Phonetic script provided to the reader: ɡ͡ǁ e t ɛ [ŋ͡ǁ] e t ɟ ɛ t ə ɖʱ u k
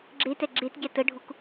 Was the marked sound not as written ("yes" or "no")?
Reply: yes